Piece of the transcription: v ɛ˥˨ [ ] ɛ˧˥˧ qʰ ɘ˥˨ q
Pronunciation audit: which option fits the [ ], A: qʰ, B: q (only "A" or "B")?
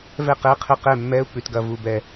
B